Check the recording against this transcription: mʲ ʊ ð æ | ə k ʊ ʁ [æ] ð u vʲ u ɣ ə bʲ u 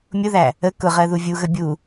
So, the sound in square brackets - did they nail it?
no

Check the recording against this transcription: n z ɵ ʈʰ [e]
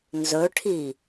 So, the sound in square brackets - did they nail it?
no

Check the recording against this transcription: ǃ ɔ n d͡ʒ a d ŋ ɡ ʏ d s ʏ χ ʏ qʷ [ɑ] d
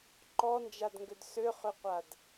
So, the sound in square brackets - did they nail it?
no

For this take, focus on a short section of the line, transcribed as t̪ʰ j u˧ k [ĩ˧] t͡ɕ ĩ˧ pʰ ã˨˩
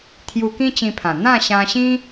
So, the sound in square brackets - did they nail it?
no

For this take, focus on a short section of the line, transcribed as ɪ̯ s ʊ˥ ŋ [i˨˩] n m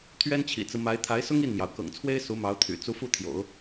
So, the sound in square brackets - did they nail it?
no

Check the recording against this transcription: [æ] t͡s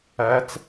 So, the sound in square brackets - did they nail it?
yes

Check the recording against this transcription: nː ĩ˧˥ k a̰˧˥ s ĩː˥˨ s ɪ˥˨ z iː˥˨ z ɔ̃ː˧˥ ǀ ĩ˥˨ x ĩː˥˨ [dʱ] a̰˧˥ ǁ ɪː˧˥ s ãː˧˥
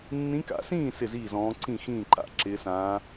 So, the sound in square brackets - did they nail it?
no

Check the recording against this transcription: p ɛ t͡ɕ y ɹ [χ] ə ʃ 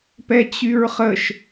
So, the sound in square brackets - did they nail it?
yes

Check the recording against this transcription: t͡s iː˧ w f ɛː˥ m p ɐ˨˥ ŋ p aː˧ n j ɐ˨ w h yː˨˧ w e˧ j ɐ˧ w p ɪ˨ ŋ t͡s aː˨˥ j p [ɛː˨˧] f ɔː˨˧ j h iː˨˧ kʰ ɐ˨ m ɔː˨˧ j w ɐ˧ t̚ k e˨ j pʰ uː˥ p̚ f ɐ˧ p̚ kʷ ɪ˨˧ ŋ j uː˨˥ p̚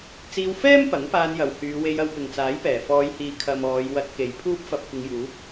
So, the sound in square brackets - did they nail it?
no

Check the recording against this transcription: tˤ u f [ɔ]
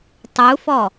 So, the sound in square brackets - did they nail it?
yes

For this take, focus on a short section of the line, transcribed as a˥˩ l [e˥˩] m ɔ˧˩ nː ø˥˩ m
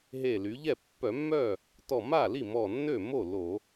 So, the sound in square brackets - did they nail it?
no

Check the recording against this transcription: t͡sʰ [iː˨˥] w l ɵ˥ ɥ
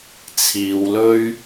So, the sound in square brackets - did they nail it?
no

